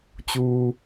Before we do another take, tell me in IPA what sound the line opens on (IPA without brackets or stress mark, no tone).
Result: t͡ɕ